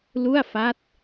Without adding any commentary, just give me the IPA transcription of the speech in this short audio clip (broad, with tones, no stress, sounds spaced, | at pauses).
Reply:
l u˥˩ a̯ f a˦˥ t̚